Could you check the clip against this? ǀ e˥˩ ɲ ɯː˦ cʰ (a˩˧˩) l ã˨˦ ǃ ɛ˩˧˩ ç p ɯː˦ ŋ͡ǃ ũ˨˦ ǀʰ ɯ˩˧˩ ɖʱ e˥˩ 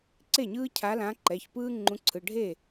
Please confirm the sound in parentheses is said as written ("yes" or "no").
no